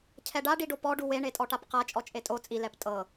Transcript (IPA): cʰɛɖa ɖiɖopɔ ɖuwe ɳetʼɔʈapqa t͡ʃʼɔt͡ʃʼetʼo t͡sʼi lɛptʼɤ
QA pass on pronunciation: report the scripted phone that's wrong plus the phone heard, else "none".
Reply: none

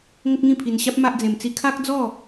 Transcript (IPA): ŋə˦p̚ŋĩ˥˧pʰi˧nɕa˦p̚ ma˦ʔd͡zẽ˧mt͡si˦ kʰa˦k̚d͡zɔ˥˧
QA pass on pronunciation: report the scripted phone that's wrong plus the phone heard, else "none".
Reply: none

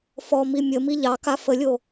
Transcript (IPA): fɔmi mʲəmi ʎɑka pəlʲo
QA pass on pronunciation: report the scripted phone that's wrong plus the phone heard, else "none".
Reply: p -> f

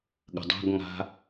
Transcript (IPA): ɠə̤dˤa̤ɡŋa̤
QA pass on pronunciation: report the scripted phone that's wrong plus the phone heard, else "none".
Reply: none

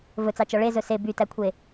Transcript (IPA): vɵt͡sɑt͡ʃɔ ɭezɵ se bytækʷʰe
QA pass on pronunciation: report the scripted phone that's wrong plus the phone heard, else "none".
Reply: none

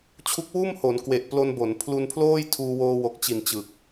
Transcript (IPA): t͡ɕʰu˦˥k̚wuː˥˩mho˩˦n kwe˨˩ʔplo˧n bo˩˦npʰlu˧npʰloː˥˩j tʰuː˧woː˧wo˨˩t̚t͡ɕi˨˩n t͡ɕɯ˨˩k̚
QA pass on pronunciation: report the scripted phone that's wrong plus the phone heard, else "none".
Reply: t̚ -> k̚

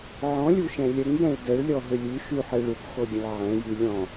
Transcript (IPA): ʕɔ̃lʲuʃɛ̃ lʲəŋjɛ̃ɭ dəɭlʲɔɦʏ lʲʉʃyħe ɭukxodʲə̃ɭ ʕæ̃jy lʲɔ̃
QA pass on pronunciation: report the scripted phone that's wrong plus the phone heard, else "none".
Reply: æ̃ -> ɛ̃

